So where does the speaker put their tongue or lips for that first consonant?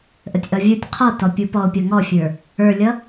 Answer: throat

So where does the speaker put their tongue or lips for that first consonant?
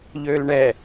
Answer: palate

